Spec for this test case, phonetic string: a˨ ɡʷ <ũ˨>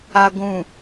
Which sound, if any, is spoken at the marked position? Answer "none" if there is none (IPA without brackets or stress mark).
ũ˨